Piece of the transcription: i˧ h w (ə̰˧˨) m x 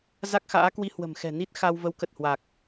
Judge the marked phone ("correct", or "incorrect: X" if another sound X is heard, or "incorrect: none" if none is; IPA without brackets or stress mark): incorrect: ə̤˨˩